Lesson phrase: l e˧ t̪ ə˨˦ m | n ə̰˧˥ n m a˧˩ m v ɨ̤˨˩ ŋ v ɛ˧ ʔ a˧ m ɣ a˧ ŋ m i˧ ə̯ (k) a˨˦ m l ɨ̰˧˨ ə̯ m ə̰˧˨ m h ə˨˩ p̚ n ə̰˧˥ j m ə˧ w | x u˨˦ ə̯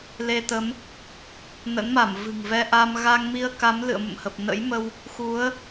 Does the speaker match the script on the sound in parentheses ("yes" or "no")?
yes